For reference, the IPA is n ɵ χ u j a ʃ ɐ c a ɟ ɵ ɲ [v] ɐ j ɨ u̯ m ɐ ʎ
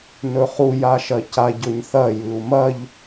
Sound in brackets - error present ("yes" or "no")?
yes